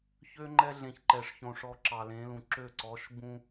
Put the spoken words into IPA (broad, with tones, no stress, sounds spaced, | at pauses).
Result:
ç ø˦ ŋ͡ǃ ɛ˦ ɮ ẽ˨ ç ǃ ɛ˨ ʂ ç õ˨ ʂ ɔ˨ ǁ ɑ˨ l ẽ˨˦ l ũ˨ ǁ ø˦˨ ǀ ɔ˨˦ ʃ b ũ˦